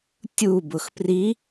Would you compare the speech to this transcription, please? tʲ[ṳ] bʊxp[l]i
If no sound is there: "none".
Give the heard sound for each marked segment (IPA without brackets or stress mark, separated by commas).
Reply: u, r